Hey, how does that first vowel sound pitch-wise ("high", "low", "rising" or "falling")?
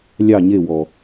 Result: falling